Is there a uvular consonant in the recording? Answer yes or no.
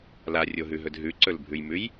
no